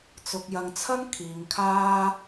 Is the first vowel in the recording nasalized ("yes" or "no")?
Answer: no